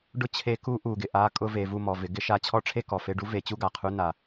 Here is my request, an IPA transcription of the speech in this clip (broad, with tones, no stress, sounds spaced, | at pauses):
ɖ ʊ˥ t͡ɕʰ e˧˥ k u˧˥ ʔ u˩ ɡ ɪ˩ ʔ a˧˥ kʼ ʊ˧˥ v e˩˧ v u˧ m ɔ˩ v ɪ˩˧ ɡ ɪ˧˥ ʃ a˧ t͡ɕʰ ɔ˥ ʈ͡ʂʰ e˥ k ɔ˩ f e˧ ɖ u˧˥ v e˩˧ t͡ɕ u˥ ɡ a˩ qʰ u˧˥ n a˩